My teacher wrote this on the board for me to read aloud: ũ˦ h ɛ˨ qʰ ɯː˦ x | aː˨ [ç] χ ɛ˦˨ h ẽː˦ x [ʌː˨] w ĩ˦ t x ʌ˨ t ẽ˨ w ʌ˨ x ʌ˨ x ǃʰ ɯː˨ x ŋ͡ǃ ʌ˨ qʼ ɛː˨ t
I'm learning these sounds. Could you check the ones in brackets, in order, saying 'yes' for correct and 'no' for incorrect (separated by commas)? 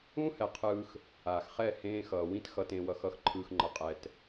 no, yes